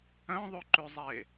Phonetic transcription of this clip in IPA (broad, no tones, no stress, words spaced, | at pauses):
œ̃ðˤʉǃʉzˤe